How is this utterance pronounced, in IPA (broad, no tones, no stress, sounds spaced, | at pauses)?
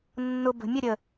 nː ʊ b ə̤ mʲ ə ɾʲ ə